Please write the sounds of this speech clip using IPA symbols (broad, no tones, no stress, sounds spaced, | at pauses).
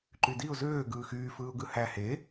ǃ y d i ʊ̯ z øː ɡ ɯː x yː f ɯː ʊ̯ ɡ ɯ h æ h e